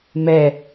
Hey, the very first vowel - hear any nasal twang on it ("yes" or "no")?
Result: no